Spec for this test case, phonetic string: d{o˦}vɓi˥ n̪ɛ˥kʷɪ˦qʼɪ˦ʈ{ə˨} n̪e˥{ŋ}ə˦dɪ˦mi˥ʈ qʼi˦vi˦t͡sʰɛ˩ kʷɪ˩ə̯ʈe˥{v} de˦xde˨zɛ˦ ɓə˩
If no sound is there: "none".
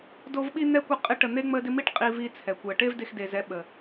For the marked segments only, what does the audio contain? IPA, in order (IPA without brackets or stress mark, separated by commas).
o˦, ə˨, ŋ͡m, v